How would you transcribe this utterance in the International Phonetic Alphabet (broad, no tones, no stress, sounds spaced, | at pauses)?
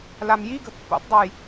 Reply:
l a m j i ɡ ə̤ pː ṵ tˤ dˤ e j